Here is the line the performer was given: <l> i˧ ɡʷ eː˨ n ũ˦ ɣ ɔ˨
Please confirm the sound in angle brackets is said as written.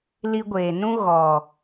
yes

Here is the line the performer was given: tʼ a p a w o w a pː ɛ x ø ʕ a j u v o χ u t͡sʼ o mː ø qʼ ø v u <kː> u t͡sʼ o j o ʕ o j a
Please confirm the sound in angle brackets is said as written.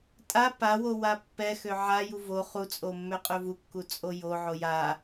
yes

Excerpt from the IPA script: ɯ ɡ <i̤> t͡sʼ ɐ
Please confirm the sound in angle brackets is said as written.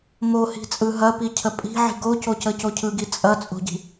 no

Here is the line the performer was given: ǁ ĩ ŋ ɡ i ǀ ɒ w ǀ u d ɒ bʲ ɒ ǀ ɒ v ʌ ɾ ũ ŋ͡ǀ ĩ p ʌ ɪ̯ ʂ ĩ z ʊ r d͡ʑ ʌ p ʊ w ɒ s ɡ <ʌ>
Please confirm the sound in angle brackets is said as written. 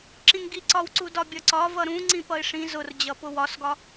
no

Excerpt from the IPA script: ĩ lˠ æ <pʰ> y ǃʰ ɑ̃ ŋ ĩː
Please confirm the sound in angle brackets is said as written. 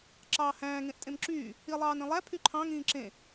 yes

